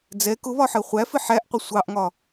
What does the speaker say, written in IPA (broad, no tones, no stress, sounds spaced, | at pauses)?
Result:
d͡z ɛ k ʊ β ɒ ħ ɜ χʷ æ f ɪ ħ æ ʔ qʷ ɪ sʷ ɑ ʔ ŋ ɒ